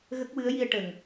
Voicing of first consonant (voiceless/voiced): voiced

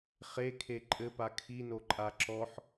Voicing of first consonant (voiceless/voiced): voiceless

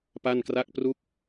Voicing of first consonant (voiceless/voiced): voiceless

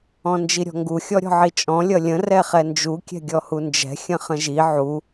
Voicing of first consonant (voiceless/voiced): voiced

